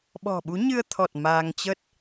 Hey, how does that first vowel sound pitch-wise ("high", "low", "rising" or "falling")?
low